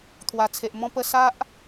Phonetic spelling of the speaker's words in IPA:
t̪ʰ w a˨˩ t͡sʰ e˨ ʔ m ɔ̃˥˧ p ə˥˧ s a˦ ʔ

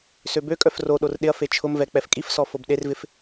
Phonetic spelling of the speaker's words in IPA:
s ø b ø kʼ œ f r o ɗ o r ɗ ɪ ɐ̯ f e t͡ʃʰ ʊ m v ɛ k͡p ɛ f kʼ i f s ɔ f o b ɗ e r v ɪ f

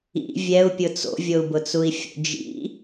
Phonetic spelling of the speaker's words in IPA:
ḭ vʲ ɛ u̯ pʲ ʊ t͡s o̰ vʲ o u̯ b ʊ t͡s u i̯ fʲ o̰ d͡ʒ ḭ

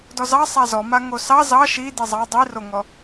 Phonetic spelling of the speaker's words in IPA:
d ɔ z ɑ sˤ a z ɔ m a ŋ o s ɑ z ɑ ʃ i d i zˤ ɑ dˤ i r o ŋ ɔ

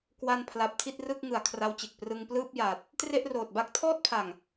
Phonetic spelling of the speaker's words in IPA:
k w a˧ n pʰ l a˨˩ p̚ tʰ i˥˩ t̚ r ɯ˥˩ k̚ ŋ ɯ˨˩ a̯ kʰ r a˦˥ w t͡ɕ e˨˩ k̚ p r ɯ˧ ŋ p l ɯː˥˩ p̚ j a˨˩ t̚ | t r e˥˩ ʔ r oː˨˩ t̚ b a˥˩ k̚ tʰ ɔː˥˩ t̚ pʰ a˨˩ ŋ

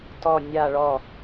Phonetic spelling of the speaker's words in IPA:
t ɔ nʲ a ɭ ɔ

